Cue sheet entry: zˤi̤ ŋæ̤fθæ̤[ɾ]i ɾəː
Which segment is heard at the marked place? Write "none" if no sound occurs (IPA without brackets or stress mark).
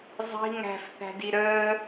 d